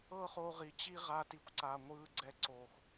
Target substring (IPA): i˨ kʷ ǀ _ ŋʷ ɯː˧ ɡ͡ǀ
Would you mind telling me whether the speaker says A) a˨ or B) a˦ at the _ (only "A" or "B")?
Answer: A